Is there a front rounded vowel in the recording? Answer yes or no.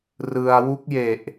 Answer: no